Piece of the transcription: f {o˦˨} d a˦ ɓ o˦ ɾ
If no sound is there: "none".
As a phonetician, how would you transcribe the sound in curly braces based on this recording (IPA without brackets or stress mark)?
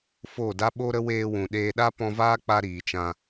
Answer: o˦˨